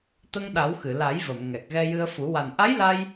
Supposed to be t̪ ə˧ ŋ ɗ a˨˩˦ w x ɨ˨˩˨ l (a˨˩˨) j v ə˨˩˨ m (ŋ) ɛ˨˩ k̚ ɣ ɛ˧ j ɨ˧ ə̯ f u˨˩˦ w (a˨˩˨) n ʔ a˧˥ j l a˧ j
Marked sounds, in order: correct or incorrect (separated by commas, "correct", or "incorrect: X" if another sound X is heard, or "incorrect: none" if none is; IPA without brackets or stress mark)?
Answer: incorrect: a˨˩˦, correct, incorrect: a˨˩